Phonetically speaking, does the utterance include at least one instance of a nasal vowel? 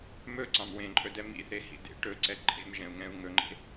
yes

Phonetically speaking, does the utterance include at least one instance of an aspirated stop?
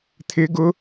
yes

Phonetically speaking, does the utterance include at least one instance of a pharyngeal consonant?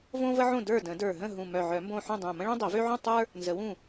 yes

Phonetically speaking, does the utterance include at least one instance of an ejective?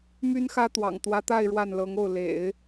no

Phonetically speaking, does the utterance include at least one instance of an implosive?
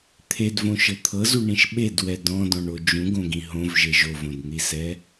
yes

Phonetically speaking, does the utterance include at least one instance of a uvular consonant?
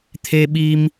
no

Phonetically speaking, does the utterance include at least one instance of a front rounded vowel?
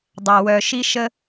yes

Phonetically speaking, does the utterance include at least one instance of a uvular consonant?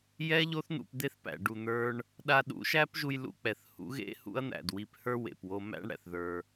no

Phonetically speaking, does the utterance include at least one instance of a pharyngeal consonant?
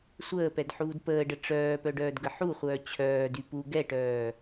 yes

